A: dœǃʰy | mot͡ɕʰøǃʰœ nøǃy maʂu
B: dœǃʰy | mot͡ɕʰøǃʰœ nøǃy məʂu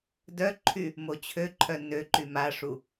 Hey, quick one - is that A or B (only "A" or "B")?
A